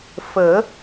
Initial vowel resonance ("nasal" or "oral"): oral